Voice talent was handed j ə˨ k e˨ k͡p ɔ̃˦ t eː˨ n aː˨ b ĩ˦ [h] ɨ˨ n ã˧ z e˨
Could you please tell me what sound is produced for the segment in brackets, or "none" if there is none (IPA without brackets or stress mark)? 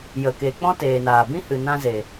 h